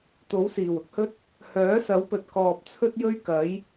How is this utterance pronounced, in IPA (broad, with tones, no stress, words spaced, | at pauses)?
t̪o˨˥wsiː˨˩wʊ˥k̚hɵ˥t̚ | hœː˨˥sɐ˨˥wpɵ˨t̚ kɔː˨p̚t͡sʰɵ˥t̚jɵ˥ɥ kɐ˨˥j